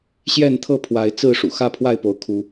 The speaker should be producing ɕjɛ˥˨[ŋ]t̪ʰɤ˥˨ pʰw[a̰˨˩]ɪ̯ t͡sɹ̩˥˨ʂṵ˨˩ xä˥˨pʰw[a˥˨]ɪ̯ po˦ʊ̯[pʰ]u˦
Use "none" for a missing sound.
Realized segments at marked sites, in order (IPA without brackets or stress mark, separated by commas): n, a˨˦, a˥˨, kʰ